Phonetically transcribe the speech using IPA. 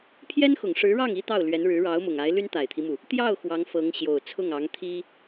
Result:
pʰ j ɛ˥ n x ʊ˨˩ ŋ ʂ ɻ̩˧˥ ɻ ɑ˥˩ ŋ i˥ t̪ ɑ˥˩ ʊ̯ l ɥ ɛ˧˥ n ɻ ɻ̩˧˥ ɻ ɑ˧˥ ʊ̯ m ʊ˨˩ ŋ a˧˥ ɪ̯ l y˥ n t̪ a˨˩ ɪ̯ t̪ʰ i˦ m u˩ | t̪ j ɑ˥˩ ʊ̯ x w ɑ˧˥ ŋ f ɤ˧˥ ŋ ɕ j o˨˩ ʊ̯ t͡sʰ ʊ˥˩ ŋ ɑ˧˥ ŋ t̪ʰ i˥

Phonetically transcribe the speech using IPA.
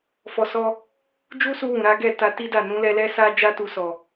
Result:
f ɔ˧ s ɔ˦ | d͡ʒ u˦ s u˧ w ũ˨ ɾ a˨˦ ɡ ɛ˦˨ t a˧ t i˦ d a˦˨ n ũ˨˦ l ɛ˧ l ɛ˦ s a˦ d͡ʒ a˦ t u˧ s ɔ˨

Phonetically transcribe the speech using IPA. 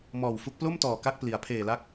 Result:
m ɔː˨˩ w f u˦˥ k̚ p l o˥˩ m t ɔː˨˩ k a˦˥ k̚ p l i˩˦ a̯ pʰ eː˨˩ l a˦˥ k̚

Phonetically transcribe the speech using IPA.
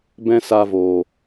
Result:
b ɛ̃˦ s a˧ v o˨

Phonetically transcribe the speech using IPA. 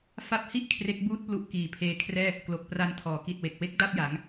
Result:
f a˦˥ p̚ h i˥˩ ʔ kʰ r e˦˥ k̚ b uː˥˩ t̚ p l u˦˥ ʔ k iː˨˩ pʰ eː˧ kʰ r ɛː˥˩ | k l o˨˩ k̚ p r a˧ n tʰ ɔː˩˦ k i˨˩ t̚ w e˨˩ k̚ w e˦˥ k̚ d a˥˩ p̚ j a˩˦ ŋ

